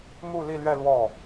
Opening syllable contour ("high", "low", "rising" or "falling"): falling